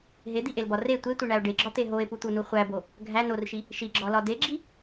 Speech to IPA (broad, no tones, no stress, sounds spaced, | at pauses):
ɦ e d̪ i ʔ e l b ɒ r e tʷ e tʷ i ɳ æ o̯ ɖ e ɡ͡ǁ ɒ t̪ e ɦ o e̯ p u t̪ u n u χʷ æ b o | ɡʱ æ n o r ʃ i | ʃ i ɡ͡ǁ ɒ l ɒ d e ɡ͡ǁ i